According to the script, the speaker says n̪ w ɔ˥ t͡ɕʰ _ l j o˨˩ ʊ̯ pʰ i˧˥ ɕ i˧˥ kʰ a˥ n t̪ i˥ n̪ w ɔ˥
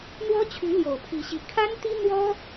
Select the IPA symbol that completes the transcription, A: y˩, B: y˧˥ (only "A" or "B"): B